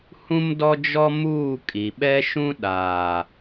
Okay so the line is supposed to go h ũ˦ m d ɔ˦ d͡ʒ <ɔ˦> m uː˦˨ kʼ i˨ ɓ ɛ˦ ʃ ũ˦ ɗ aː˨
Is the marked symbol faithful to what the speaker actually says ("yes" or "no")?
yes